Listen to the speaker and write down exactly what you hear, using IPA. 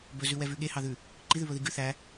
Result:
b ɵ z ʉ w ɛ v ʉ ɠ e h ɑ ð ʉ | ǃ i ð ʉ β ɵ ð i ɡ ʉ θ æ

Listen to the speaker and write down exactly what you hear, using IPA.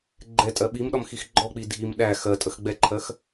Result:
ɡ͡ǃ ɛ tʼ ɜ ɓ i m ɗ ɒ m x i x ɡ͡ǃ ɔ k͡p i dʱ i m ɗ æ x ɜ tʼ ə x ɡ͡b ɛ ǃʰ ɜ x

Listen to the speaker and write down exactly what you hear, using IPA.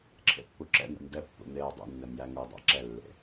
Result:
ǁʰ ḛ pː u ǁ ɛ̰ n̪ ɛ̰ m d ɛ pː ṵ n̪ eː o̯ dˤ ṵ nː ɛ m j æ ŋ u dˤ æ̰ ǁ ɛ lː ḛ

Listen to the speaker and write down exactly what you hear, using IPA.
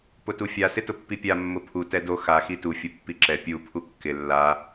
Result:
p ʊ t u fʲ a s ɪ t ʊ pː i pʲ a mː ʊ pʰ u t ɛ d o x a x i t u fʲ ʊ pː i ǁ ɛ pʲ u pʰ u kː ɪ lː a

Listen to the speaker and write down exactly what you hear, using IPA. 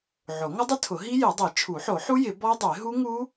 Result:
ʕ o˨˩˦ ŋ ʊ˦˥ dˤ ɪ˦˥ tʰ ʊ˨˩˦ ɦ i˦˥ j i˨˩˦ dˤ i˨˩˦ t͡ʃʰ u˨˩˦ ħ o˨˩˦ ħ u˦˥ j ɪ˨˩˦ b ɔ˦˥ dˤ e˨˩˦ ɦ u˦˥ ŋ u˦˥

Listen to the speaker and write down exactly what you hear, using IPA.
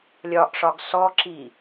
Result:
lʲ ɒ ʔ ʂ ɒ ɡ s ɔ ǁ i

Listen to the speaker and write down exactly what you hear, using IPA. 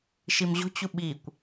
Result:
ʃ i m ʑ o̤ t͡ɕ u ɓ i kʷ

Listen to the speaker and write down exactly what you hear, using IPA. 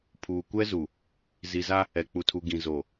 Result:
pʰ uː˨ kʷ ɛ˦ z u˨ | z i˨ z a˦ | ɛ˨ k͡p u˨ tʰ u˨ ɡ ĩ˨ z o˨

